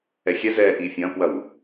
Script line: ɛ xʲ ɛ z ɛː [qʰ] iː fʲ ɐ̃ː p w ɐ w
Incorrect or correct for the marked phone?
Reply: incorrect: ʔ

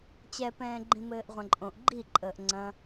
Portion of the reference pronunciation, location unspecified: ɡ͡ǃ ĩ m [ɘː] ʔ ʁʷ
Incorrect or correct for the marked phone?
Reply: correct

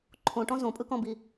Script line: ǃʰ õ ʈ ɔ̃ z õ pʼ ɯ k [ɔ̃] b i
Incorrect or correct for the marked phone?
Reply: correct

